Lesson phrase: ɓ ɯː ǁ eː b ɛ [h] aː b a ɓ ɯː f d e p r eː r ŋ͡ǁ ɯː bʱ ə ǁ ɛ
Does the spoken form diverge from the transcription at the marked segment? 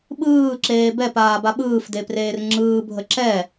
yes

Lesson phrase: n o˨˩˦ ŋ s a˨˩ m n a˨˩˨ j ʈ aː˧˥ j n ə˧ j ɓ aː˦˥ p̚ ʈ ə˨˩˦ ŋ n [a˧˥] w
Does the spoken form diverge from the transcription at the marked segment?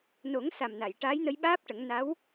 no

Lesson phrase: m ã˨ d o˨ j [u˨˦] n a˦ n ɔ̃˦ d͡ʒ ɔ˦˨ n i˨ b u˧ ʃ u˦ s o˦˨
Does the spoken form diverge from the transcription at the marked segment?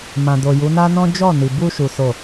no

